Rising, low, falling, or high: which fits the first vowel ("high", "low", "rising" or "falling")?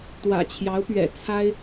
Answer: low